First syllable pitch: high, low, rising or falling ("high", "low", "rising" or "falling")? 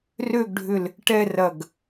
falling